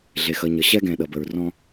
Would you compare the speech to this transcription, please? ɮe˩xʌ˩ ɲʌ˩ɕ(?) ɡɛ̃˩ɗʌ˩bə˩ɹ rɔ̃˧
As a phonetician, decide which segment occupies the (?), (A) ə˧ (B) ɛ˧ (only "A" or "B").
B